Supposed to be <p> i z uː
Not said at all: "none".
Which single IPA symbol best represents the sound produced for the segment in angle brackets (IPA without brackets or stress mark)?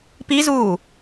p